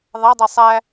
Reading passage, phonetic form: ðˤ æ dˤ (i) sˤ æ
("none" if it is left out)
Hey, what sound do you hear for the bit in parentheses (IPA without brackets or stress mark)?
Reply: i